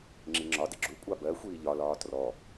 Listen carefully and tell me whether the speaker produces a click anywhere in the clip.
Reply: yes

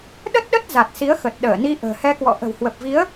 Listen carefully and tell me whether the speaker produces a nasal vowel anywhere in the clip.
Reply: no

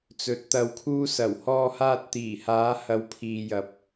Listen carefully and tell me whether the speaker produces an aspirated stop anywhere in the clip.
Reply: yes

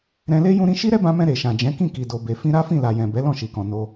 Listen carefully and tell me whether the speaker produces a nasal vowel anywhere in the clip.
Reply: yes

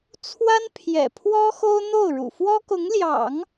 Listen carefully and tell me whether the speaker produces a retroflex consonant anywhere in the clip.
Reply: yes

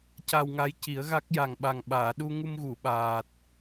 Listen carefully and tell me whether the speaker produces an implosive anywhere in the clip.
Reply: yes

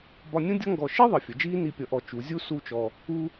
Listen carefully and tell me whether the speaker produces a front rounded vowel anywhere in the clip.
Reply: no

